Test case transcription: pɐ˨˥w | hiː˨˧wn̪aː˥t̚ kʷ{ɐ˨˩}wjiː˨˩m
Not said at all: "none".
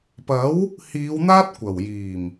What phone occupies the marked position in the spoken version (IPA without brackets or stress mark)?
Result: ɐ˨˩